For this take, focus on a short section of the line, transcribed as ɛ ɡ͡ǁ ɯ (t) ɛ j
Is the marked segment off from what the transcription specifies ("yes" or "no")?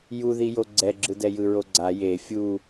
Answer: yes